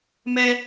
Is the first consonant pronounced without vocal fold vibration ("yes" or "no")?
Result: no